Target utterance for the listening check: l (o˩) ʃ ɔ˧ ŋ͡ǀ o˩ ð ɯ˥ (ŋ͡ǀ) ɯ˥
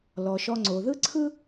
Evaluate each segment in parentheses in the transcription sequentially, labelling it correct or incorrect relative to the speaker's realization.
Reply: incorrect, incorrect

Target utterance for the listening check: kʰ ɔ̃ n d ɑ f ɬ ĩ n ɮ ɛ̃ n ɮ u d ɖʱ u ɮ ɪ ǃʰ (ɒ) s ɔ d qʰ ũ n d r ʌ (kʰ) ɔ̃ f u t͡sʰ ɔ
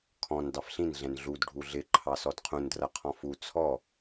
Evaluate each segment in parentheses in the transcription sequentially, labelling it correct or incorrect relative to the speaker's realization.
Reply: incorrect, incorrect

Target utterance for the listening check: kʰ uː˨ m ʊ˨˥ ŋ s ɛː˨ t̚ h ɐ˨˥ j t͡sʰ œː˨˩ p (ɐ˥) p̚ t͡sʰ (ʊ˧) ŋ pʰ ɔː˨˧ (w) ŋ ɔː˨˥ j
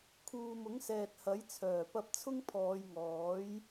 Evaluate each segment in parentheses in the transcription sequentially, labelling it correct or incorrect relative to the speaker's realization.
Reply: incorrect, incorrect, incorrect

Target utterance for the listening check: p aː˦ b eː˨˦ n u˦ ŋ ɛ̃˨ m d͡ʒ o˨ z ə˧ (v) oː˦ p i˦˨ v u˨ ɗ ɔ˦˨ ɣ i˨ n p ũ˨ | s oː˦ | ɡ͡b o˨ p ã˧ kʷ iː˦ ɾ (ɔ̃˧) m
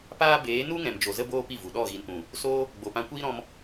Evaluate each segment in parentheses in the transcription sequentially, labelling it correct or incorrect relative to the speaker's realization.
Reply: incorrect, correct

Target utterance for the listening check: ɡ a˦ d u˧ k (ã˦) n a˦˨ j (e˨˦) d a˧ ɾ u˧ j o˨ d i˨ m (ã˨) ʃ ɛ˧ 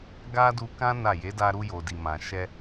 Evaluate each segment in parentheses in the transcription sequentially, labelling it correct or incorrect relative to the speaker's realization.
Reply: correct, correct, correct

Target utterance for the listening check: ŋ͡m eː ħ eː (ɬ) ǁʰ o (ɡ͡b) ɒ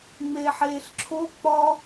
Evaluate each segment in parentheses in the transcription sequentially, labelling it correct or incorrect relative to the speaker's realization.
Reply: correct, incorrect

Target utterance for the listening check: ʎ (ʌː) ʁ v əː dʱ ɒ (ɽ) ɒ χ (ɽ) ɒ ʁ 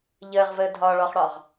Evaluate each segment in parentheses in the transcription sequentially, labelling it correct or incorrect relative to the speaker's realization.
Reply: incorrect, incorrect, correct

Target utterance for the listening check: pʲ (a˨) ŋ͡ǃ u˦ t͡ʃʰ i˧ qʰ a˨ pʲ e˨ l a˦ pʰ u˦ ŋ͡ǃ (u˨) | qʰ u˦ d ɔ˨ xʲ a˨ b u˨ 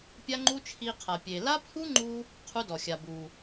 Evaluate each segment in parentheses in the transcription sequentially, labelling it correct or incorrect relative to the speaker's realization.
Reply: incorrect, incorrect

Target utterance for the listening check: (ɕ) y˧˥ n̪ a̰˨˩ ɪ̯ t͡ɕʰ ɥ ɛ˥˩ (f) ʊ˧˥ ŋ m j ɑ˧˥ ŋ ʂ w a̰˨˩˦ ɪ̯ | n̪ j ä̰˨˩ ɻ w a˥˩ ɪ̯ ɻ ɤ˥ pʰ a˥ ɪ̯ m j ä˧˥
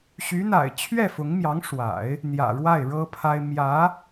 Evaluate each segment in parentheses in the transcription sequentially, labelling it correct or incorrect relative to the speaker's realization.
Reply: correct, correct

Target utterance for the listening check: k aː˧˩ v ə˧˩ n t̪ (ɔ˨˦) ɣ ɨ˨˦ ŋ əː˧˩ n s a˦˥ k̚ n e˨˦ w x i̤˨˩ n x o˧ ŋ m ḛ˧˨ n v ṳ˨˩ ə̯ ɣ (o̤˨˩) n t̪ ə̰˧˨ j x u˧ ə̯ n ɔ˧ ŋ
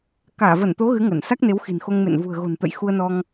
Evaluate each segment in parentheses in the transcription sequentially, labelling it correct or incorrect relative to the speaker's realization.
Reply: incorrect, correct

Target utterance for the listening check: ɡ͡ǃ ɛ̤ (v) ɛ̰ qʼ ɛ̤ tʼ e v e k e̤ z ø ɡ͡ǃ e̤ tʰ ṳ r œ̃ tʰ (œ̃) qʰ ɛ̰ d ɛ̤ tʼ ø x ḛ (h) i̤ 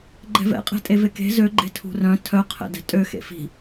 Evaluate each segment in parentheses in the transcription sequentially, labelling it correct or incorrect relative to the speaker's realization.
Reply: correct, incorrect, incorrect

